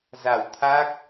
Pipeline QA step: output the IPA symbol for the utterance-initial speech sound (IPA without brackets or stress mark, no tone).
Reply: z